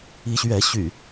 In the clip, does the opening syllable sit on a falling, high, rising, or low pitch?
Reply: rising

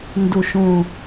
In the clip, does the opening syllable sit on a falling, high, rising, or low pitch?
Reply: low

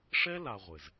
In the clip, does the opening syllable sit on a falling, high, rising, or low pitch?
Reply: high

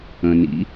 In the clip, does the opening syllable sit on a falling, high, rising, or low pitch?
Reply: low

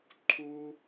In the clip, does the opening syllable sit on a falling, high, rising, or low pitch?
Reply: high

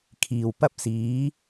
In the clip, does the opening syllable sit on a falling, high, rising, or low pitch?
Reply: low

